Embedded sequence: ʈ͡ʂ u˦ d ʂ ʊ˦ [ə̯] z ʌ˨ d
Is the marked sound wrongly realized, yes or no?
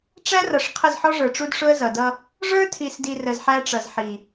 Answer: no